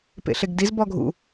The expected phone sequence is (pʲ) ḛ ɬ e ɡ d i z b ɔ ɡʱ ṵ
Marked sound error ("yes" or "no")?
yes